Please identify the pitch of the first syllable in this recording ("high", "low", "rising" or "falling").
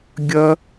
high